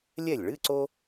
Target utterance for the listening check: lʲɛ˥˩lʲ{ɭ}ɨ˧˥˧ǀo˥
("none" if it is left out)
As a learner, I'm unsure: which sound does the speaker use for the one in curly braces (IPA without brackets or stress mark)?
ɭ